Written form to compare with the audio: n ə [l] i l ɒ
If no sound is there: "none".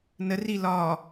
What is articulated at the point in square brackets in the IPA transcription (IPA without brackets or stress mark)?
r